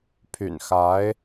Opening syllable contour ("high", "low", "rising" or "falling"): low